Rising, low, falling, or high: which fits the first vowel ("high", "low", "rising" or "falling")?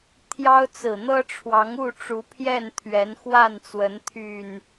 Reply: high